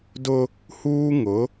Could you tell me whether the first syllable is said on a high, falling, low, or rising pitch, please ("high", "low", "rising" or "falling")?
high